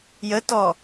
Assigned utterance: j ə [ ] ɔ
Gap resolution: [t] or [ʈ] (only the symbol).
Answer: t